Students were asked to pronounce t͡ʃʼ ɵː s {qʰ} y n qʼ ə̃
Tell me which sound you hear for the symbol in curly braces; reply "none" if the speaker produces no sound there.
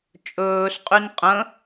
qʼ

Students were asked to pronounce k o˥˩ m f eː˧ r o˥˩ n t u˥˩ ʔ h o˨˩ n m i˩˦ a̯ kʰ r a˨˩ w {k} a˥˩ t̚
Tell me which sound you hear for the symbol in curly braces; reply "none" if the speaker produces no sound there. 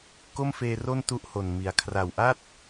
ʔ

